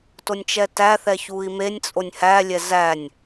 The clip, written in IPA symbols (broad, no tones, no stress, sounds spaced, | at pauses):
t o nʲ t͡ʃ ɛ t æ θ ɛ ç u i̯ m e nʲ t͡sʼ o nʲ h æ lʲ ɛ z æ nʲ